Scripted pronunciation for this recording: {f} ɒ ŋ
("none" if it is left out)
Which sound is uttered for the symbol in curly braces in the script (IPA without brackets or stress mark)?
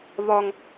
β